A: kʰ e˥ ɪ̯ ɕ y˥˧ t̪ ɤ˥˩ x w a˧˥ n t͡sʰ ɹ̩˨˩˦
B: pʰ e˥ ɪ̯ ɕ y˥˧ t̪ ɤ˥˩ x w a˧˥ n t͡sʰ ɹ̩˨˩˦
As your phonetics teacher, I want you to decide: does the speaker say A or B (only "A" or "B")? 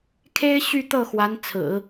A